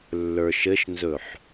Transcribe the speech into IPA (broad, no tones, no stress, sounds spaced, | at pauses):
lː ə˞ ʃ ɘ ʃ n z ɵ ħ